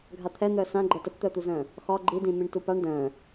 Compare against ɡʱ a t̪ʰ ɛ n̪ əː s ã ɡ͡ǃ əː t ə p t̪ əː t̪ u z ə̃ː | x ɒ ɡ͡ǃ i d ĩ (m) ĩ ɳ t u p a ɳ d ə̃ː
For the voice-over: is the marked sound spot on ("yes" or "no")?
yes